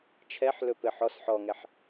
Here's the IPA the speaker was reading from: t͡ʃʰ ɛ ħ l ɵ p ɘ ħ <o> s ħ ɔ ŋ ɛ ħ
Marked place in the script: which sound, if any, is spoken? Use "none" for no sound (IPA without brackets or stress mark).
ɔ